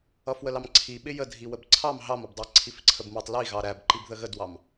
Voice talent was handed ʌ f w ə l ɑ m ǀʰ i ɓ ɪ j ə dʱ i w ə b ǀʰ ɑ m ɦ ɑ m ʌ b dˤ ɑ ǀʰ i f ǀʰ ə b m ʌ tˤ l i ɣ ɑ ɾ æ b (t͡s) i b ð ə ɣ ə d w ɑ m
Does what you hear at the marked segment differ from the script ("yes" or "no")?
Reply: yes